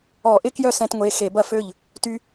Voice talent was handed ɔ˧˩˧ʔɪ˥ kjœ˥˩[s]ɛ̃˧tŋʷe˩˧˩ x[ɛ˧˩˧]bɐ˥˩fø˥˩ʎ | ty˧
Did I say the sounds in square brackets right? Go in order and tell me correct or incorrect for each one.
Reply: correct, incorrect

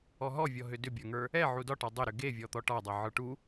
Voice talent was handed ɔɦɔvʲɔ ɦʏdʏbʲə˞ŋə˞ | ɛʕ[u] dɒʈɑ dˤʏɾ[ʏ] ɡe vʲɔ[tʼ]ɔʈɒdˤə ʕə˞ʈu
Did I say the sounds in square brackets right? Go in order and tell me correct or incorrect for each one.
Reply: correct, correct, incorrect

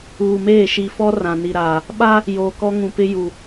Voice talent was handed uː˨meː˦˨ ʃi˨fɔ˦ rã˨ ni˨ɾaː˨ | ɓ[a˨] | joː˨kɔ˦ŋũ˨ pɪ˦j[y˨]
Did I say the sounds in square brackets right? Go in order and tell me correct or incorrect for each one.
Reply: incorrect, incorrect

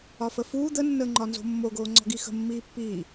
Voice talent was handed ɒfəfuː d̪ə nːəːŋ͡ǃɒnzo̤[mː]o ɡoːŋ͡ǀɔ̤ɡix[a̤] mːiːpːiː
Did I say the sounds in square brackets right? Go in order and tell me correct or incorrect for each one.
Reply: correct, incorrect

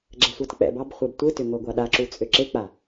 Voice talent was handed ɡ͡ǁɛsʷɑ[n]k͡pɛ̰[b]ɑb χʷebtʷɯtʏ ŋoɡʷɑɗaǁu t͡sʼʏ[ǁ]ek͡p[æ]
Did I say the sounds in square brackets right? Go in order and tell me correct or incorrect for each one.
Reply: incorrect, correct, correct, incorrect

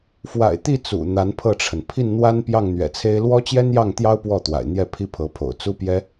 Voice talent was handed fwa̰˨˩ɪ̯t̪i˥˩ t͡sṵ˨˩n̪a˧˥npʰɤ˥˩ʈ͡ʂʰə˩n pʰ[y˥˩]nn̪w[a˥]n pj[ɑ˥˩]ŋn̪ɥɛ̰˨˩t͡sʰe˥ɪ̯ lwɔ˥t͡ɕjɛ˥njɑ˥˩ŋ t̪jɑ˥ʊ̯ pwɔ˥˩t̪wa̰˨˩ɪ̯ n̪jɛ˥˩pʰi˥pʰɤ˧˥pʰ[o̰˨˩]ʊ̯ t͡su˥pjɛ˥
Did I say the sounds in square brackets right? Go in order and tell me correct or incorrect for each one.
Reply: incorrect, correct, correct, correct

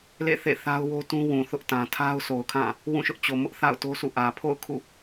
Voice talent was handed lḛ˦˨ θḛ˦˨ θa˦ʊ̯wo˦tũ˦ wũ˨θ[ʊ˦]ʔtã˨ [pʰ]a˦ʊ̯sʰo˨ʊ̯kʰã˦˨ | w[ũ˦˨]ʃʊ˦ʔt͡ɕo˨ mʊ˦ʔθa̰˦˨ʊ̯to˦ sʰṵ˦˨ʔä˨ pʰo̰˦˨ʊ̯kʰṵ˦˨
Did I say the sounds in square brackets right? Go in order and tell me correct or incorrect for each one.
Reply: correct, incorrect, correct

